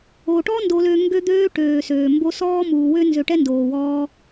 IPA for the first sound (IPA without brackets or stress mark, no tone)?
o